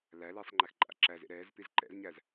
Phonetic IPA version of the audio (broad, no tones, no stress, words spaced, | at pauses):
læliːsˤ ŋ͡ǃæxǃʼa̰ǁæzḛ ɾɛːzpiz ǃɛ̰zɲæz